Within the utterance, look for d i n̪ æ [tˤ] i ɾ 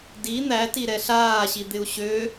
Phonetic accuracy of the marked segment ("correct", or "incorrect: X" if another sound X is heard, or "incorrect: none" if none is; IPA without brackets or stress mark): incorrect: t